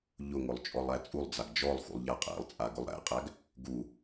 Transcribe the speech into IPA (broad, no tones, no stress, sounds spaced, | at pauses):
ʎ ʊ ŋ ʊ lˠ t͡ʃʼ ɔ lˠ æ t͡sʼ u lˠ d͡z a ɡ d͡ʒ ɔ lˠ x ṵ lˠ ʎ a qʼ æ̰ lˠ t͡sʼ a ɡ ʊ lˠ ɾ æ̰ qʼ æ ɡ | ɡ u